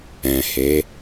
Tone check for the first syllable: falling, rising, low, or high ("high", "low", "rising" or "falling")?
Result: low